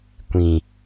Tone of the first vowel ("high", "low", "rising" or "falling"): low